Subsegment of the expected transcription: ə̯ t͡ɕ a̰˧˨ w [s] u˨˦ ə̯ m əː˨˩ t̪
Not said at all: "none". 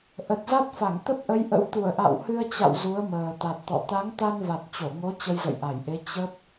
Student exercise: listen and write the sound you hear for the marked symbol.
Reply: z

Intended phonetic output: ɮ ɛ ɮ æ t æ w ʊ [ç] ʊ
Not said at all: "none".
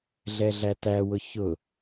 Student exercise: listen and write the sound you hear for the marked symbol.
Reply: ç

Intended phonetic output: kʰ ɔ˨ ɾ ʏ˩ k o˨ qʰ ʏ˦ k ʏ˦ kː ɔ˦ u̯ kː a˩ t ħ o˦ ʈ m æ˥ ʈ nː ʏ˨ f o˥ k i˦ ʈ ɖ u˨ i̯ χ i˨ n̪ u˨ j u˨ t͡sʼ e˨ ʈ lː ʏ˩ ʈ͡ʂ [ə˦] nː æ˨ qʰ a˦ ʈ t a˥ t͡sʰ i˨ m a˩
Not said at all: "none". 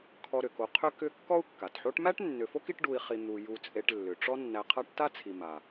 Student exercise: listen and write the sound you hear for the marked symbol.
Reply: ɔ˦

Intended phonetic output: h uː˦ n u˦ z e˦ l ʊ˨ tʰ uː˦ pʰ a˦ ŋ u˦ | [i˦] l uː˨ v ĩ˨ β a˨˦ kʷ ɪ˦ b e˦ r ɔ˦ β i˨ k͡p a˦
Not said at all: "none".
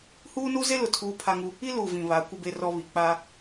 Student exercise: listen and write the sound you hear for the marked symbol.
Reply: i˦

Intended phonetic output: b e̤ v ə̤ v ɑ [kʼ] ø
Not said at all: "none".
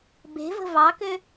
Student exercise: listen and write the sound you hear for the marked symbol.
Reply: k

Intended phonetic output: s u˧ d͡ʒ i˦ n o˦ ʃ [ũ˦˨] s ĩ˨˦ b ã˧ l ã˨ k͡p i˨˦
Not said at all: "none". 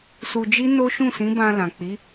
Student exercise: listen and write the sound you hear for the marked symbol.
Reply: ũ˦˨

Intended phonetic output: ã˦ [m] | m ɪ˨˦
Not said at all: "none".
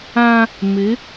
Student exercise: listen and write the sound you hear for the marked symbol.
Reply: none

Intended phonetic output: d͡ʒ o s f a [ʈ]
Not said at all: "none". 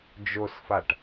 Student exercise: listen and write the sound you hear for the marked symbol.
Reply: ʈ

